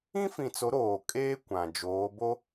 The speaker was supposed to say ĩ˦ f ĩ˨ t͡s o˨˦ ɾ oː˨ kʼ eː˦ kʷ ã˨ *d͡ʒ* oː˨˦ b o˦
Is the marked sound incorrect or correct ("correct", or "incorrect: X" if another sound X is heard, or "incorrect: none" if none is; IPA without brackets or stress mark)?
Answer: correct